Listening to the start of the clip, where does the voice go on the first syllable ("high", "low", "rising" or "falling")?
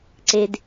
high